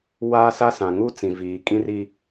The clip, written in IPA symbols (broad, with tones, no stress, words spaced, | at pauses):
wa˦sa˦sã˨ ŋu˦t͡sĩ˨viː˨ kʼĩ˦ri˦